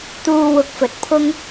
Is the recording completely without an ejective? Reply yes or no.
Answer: yes